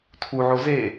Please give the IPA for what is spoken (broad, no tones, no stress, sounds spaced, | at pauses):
tʰ u ʕ o z e